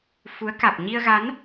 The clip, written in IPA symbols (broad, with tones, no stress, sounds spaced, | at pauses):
f u˨˦ ə̯ k a˨˩ k̚ ɲ i˧ ə̯ ɣ a˨˦ n